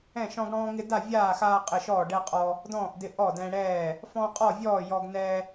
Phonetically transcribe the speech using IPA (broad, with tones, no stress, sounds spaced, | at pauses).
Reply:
ɛ̃˥˨ ʃ ɔ̃˦ ɡ ɽ ɔ̃ː˦ ŋ ɪ˦ d a˥˨ vʲ aː˥˨ x aː˦ qʼ ɪ˥˨ ʃ ɔː˥˨ ɖ ɛ˦ qʼ ɔ˦ | d ɔ̃ː˥˨ ʔ d ɪ˦ ʔ ɔ˥˨ d ɛ̃˦ ɽ ɛː˥˨ | f ɔ̃˦ qʼ ɔ˥˨ vʲ ɔː˥˨ j ɔ˦ ɡ n ɛ˦